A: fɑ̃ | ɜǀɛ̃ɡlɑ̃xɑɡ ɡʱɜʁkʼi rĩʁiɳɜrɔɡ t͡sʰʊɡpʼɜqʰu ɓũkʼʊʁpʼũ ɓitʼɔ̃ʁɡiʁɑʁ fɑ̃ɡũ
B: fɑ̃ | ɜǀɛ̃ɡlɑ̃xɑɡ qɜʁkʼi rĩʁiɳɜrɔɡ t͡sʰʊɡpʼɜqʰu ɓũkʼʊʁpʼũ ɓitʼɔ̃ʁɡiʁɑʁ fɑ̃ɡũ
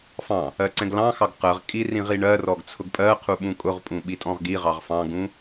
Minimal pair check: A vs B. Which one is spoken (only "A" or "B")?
B